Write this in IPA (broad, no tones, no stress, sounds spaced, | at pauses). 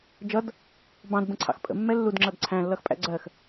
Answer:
d͡ʒ ʌ d | b ɑ̃ d b ə̃ ǀʰ ɑ̰ x pʼ ə̰ mː ɛ lː u d ŋ͡ǁ ʌ d ǀʰ æ̃ lː ʌ x pʼ æ̰ ɡ͡ǀ ɜ x